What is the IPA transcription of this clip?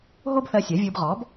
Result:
ɦ o˥ b θ ɜ˧ sʲ ɜ˩˥ vʲ ɯ˧ b ʁ ɔ˩˥ b

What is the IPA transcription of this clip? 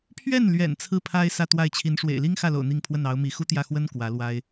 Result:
pʰ ɥ ɛ˥˩ n l ɥ ɛ̰˨˩ n t͡sʰ ɹ̩˥˩ pʰ a˥ ɪ̯ s ä˥˧ t̪ w a˥˩ ɪ̯ t͡ɕʰ i˧˥ n ʂ w ḛ˨˩ ɪ̯ l i˥ ŋ x ä˥˩ l o̰˨˩ ʊ̯ n̪ i˥˧ ŋ pʰ w ə˥˩ n ɑ˧˥ ʊ̯ m i˧˥ x u˥ t̪ j ä˥˩ x w ə˥ n k w ä˧˥ l w a˥ ɪ̯

